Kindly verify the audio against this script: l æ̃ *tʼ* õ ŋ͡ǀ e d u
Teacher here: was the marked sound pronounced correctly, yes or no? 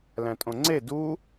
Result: yes